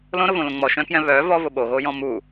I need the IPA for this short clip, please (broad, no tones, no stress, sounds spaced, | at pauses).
l õ ɾ ʊ v õ l õ ŋ͡m ɔ ʃ œ̃ k j ɛ̃ β œ v ɔ v ʊ ɓ o ɣ o j ɔ̃ m u